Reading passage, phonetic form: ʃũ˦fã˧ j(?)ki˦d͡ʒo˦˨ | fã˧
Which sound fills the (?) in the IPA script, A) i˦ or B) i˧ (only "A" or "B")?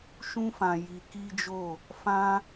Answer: B